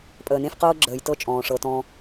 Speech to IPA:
pʼ əː˨ n ẽ˦ f q ɤː˦ ɡ͡ǁ əː˨ j t ɤ˦ t͡ʃʼ ɔ̃ː˨ ʂ ɤ˨˦ t ɔ̃˦

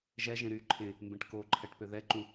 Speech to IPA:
ʒ ɛ ʒ ẽ ɾ y ǃʰ ẽ | m b ẽ ʈ k o ǃʰ ɛ ʈ p ø ð ɛ ǃ ũ

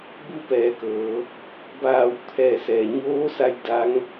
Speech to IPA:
b u˥˨ p ɛː˩˧ k ɤː˩˧ | b aː˧˩ w t̪ʰ ɛː˧˩ s ɛː˩ ɲ oː˧˥ s a˧ j d a˧˥ ŋ

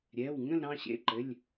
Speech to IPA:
ɾʲ ɛ˩˧˩ w ŋ ə̃˦˨ l ɾ ɑ̃˦˨ ɕ ḛ˩˧˩ ǃ ɘ˩˧˩ lʲ

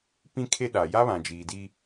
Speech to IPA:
p ĩ˦ kʰ e˦ ɗ a˨ j a˦ β ã˨ d͡ʒ iː˨ d i˦

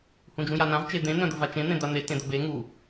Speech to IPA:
h ũ d͡ʒ ũ j a n ã v t͡ʃ e d̪ ẽ n̪ œ̃ d̪ ə v a t͡ʃ ẽ n̪ ẽ d̪ a n̪ e t ẽ d̪ ə b e ŋ u

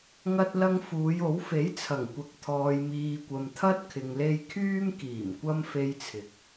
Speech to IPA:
ŋ ɐ˧ t̚ l ɐ˧ ŋ f uː˨˧ j o˨˥ w f e˨˥ j t͡sʰ ɐ˨˩ ŋ kʷ ɐ˨ k̚ t̪ʰ ɔː˨ j m iː˨ kʷ ɐ˨ m t̪ʰ ɐ˥ t̚ kʰ ɪ˨ ŋ l e˧ j kʰ yː˥ m k iː˨˩ m kʷ ɐ˧ m f e˧ j t͡sʰ ɪ˨˥ k̚

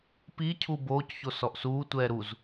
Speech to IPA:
p i cʰ u b oː c ç o s ɔ ʔ s uː tʷ ɛː ɾ u z

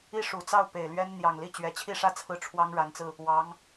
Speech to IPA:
i˥˩ ʂ u˨˩ t͡s ɑ˥˩ ʊ̯ p e˨˩ ɪ̯ l ɥ ɛ˥ n n̪ j ɑ˨˩ ŋ l i˥˩ t͡ɕ ɥ ɛ˨˩ t͡ɕʰ i˥˧ ʂ ä˥˧ t͡sʰ ɹ̩˥˩ ʈ͡ʂʰ w ɑ˥ ŋ ɻ a˧˥ n t͡s ɹ̩˧ | w ɑ˧˥ ŋ

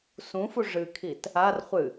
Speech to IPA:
s ũ f u ʐ ɨ kʰ i t | a r χʷ ɨ

